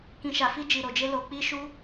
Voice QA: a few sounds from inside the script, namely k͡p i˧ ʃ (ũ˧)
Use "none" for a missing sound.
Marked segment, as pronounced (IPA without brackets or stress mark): u˧